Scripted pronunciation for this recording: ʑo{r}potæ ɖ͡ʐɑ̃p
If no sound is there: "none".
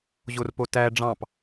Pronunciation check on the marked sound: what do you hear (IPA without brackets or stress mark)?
r